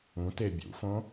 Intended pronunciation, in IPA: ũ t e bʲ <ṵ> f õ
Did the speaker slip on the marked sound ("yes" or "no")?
no